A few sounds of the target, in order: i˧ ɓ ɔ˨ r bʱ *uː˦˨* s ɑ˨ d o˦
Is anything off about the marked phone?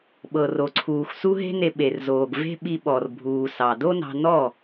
yes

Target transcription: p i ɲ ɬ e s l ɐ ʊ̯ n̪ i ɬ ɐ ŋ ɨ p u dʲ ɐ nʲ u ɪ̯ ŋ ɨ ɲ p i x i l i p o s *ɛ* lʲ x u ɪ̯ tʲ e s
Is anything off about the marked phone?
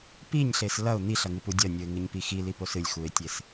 yes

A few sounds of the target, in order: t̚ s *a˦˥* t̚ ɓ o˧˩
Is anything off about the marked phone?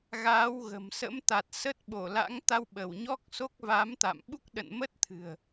yes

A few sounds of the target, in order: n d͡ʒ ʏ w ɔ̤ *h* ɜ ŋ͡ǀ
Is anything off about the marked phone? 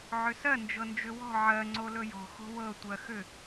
yes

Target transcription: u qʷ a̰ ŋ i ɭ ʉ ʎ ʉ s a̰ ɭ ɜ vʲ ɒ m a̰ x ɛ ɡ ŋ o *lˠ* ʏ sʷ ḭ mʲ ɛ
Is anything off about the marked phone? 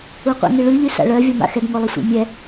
no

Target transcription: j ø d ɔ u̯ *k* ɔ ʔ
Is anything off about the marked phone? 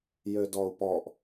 yes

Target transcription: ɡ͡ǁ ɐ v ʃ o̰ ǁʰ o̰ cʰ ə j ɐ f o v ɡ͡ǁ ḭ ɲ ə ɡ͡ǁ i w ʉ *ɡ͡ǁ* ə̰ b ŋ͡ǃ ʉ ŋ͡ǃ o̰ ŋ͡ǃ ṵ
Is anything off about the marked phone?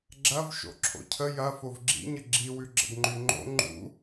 no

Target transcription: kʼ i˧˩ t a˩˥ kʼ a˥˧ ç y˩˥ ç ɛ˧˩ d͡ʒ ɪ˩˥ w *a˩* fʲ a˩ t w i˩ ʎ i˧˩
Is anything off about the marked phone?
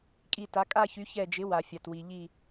no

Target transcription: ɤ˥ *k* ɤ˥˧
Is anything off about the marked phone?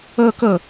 no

